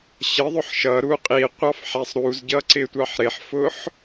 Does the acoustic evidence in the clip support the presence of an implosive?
no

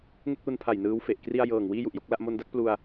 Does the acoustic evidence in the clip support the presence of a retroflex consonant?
no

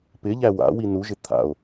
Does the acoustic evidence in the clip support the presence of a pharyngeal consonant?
no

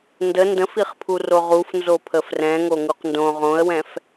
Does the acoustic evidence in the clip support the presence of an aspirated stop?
yes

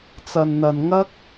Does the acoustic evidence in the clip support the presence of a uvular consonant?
no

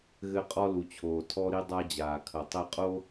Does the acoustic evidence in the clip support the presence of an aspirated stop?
yes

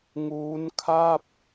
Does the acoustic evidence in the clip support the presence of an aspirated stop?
yes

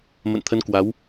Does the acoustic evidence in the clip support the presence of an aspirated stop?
yes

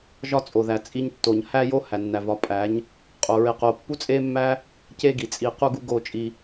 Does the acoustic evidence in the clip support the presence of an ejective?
yes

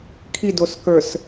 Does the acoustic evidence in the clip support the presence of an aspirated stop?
yes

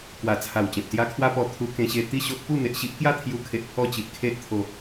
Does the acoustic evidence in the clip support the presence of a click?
no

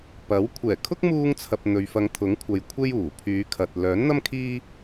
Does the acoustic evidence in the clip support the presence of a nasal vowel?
no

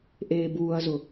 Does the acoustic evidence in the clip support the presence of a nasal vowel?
no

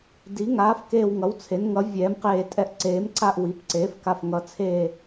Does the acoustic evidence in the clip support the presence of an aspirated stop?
yes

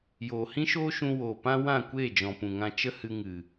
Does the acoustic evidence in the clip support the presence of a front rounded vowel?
no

